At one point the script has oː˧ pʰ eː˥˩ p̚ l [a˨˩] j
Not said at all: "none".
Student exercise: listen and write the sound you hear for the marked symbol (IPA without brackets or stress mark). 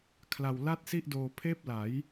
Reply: a˩˦